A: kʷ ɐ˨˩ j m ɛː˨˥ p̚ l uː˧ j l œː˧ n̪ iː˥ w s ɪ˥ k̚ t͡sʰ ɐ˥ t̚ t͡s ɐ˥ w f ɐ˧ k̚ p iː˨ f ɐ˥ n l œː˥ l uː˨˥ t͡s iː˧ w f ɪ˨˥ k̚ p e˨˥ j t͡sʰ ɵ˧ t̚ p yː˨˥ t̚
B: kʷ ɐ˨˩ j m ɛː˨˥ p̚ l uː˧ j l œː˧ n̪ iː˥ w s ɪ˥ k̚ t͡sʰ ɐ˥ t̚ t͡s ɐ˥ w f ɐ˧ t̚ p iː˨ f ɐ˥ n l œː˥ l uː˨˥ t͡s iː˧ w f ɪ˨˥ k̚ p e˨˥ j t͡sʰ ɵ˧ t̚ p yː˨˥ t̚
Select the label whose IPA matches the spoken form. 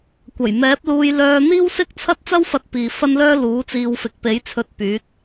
B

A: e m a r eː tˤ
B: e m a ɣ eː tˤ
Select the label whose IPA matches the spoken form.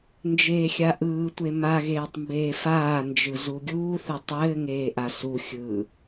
B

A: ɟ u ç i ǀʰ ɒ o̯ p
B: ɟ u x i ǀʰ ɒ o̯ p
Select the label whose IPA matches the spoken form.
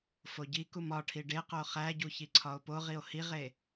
A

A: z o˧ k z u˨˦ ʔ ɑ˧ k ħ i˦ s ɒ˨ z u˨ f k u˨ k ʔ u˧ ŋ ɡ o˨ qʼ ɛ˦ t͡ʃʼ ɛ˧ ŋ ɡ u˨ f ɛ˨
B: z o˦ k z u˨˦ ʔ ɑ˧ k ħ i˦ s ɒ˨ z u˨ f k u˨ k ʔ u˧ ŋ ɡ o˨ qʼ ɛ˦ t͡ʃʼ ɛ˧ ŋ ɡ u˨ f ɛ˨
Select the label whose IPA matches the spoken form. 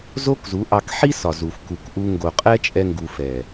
B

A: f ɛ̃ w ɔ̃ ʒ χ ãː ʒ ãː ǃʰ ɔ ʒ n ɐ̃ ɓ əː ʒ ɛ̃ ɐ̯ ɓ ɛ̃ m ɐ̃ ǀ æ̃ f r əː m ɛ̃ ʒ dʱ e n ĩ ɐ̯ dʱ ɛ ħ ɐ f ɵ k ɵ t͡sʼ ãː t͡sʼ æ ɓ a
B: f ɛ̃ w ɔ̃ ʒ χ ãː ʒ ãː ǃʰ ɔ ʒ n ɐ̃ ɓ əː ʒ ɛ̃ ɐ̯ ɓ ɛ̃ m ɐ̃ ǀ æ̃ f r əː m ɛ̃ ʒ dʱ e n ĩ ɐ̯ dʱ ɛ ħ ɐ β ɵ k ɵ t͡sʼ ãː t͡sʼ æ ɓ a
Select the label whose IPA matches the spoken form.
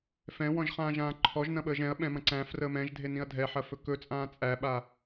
A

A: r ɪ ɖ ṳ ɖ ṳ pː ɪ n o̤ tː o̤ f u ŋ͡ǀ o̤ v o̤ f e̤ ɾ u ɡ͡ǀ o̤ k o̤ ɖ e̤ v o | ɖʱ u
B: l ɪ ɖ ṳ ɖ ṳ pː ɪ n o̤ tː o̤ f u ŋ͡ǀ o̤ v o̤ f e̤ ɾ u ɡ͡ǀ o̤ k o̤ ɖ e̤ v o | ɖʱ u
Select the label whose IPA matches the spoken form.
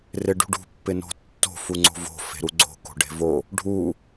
A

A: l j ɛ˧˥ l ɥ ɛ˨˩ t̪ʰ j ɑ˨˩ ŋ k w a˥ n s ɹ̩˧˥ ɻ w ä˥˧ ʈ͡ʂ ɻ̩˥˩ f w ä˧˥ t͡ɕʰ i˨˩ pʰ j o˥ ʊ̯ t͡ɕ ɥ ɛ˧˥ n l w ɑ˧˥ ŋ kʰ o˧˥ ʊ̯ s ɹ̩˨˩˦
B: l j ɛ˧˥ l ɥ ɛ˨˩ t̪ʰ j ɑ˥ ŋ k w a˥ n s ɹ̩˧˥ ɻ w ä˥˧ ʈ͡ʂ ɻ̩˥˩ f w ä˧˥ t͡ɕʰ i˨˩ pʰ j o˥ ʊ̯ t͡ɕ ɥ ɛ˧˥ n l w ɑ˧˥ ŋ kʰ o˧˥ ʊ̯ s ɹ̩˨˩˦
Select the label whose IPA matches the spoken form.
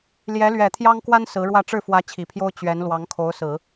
B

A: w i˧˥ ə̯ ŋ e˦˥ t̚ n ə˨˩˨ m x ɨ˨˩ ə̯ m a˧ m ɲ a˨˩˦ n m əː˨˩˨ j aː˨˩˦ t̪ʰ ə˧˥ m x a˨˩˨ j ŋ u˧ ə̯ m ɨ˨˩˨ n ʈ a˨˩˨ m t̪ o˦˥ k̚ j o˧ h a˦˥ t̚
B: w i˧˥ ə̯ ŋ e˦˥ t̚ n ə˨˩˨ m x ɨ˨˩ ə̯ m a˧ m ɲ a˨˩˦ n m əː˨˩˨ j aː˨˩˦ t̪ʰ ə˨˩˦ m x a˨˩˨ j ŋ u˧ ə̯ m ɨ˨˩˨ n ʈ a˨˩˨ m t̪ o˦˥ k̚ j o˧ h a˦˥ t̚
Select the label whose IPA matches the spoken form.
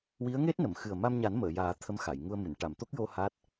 A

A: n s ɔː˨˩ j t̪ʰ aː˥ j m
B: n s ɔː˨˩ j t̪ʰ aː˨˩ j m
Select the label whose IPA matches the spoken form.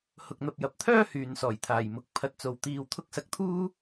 B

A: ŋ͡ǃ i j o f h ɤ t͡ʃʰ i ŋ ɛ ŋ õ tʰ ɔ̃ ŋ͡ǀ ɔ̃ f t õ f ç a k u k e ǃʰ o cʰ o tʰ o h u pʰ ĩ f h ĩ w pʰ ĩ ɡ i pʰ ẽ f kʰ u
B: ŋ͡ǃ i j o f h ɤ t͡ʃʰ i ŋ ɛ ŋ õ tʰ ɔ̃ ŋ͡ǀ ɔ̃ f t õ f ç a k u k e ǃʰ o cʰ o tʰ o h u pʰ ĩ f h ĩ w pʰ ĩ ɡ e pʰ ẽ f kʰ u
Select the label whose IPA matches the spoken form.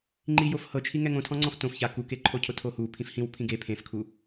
B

